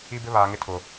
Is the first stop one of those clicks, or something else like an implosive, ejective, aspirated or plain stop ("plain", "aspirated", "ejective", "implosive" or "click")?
plain